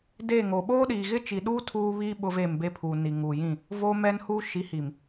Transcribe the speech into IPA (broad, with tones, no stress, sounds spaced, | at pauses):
d eː˦˨ ŋ o˨ ɓ oː˦ ɗ iː˨ ɣ ɪ˦ t͡ʃ i˨ ɗ uː˦ tʰ uː˦ β iː˦ ɓ ʊ˦ v eː˦˨ m b e˦ pʰ uː˨ n i˨ ŋ uː˨ j ĩ˦˨ | v oː˦ m ɛ˦ n h uː˦ ʃ i˨˦ h i˨ m